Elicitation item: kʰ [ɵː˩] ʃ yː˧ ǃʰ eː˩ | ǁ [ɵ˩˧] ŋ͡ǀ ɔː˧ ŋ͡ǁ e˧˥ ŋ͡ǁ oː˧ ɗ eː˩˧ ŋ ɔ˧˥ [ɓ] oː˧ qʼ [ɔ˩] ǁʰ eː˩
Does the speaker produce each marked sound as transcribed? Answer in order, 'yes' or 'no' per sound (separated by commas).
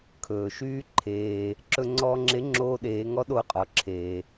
yes, no, no, no